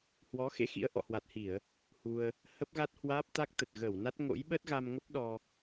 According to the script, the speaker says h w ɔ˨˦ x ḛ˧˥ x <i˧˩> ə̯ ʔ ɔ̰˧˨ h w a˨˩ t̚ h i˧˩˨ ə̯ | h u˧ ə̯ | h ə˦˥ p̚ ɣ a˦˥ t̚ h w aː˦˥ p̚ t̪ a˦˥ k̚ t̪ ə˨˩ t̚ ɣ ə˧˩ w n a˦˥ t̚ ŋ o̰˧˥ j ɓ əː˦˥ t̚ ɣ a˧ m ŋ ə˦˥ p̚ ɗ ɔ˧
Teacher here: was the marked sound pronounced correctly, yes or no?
no